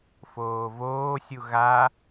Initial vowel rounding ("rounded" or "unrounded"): rounded